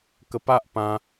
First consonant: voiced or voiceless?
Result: voiceless